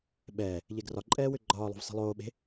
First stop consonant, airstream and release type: implosive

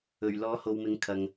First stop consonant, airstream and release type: aspirated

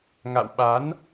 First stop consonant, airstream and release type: implosive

